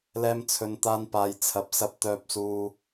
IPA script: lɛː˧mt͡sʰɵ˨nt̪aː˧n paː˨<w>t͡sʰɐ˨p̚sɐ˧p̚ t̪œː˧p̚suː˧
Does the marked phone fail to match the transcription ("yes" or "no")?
yes